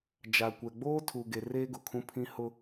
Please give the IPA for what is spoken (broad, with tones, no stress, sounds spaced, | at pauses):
d͡ʒ a˨ kʷ ɛ˨ ɡ͡b oː˦ tʰ u˨ ɡ e˨ r eː˦ ɡ ʊ˨ kʰ ũ˦ pʰ ĩ˦ h ʊ˦